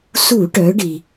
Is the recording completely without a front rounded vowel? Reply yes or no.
no